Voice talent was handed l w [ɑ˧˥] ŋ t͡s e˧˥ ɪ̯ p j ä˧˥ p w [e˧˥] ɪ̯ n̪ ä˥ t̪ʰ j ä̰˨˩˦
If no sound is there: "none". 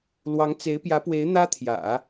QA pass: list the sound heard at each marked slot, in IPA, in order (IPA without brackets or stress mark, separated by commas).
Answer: ɑ˧˥, e˧˥